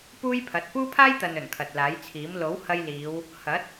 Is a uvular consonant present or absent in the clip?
absent